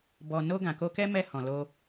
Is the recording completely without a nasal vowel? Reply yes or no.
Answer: no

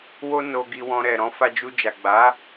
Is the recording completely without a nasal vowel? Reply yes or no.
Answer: no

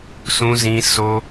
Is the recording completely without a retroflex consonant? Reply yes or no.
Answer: yes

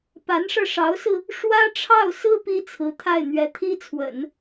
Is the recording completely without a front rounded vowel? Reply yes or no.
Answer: yes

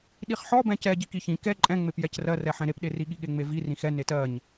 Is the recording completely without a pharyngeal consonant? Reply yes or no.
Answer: no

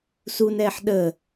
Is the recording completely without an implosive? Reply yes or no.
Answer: no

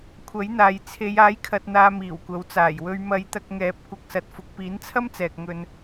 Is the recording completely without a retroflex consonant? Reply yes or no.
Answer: yes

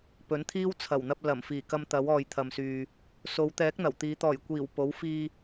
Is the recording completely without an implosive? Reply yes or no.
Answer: yes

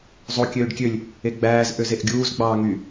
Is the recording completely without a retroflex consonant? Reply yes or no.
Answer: no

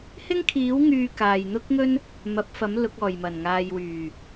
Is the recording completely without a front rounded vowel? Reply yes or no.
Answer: no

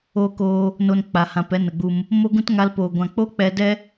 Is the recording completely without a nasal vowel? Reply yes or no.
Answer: no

